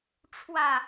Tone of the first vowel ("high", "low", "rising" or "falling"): falling